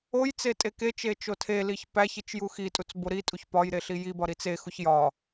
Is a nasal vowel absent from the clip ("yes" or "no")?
yes